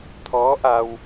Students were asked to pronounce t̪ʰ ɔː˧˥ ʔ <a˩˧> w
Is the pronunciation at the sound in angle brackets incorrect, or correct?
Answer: incorrect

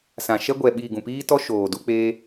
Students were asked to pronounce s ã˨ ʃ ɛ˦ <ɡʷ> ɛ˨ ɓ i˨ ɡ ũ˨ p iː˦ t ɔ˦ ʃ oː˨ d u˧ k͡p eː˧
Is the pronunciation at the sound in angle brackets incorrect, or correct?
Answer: correct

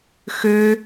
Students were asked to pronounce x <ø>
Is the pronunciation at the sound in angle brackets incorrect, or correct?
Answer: correct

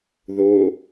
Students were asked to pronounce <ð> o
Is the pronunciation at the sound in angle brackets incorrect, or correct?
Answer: correct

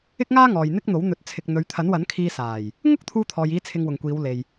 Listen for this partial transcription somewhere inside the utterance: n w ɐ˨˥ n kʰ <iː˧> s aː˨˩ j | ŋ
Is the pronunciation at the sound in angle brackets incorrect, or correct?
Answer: correct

